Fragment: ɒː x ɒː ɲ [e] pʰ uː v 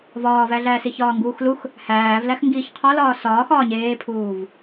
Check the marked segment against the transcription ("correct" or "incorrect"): incorrect